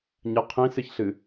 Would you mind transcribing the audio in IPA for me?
ɲ ɐ qʰ ĩ s ɨ ç ɬ ɨ

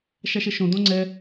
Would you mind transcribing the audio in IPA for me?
ʃ a ʃ ɛ ʃ õ d̪ õ ŋ͡ǀ ɛ

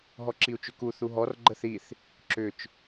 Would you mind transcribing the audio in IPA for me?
ɦ ɔ ǁ i u̯ t͡ʃ ʏ k u θ u ɦ ɔ r ɡ͡ǃ ə θ i θ | ǁ ʏ t͡ʃ

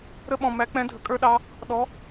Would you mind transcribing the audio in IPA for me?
ɾ ə˥ ɓ ɔ̃˧ m æ˧˥ k͡p ɛ̃˧˥ dʱ ə˩˧ kʼ ə˞˥ ɗ ɑ˧˥ | ɗ ɔ˧˥

